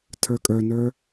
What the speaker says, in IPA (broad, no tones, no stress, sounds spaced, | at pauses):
tʰ ə˞ kʼ ə˞ n ə˞